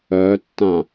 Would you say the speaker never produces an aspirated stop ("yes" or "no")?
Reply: yes